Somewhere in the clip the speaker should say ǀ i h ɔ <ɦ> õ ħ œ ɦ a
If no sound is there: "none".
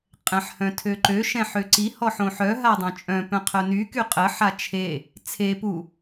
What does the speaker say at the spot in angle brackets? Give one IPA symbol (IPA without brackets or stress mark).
ħ